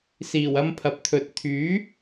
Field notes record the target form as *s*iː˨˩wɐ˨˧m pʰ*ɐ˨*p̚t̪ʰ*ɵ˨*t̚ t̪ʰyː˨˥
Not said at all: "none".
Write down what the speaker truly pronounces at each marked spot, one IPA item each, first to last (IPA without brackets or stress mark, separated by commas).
s, ɐ˨, ɵ˨